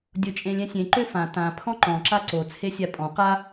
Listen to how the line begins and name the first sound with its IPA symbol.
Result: dʲ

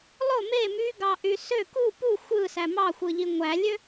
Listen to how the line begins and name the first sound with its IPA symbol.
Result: lˠ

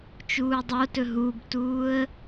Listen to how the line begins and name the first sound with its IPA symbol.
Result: t͡ʃ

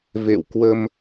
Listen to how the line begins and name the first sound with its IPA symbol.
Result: v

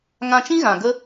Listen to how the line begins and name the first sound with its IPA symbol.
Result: ŋ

